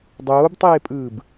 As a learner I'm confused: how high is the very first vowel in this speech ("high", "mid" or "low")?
mid